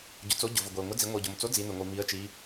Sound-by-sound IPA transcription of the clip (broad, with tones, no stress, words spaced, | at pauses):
ɟʊ˩˧t͡so˨˥ɟʊ˩vʊ˩ ɡʷe˩ʊ̯ŋʊ˨˥d͡zi˩˧ ŋʷi˩ʊ̯ɟʊ˩mt͡so˨˥ d͡zi˩˧nʊ˩ŋʷi˩ mi˩˧ə̯t͡ʃi˩˧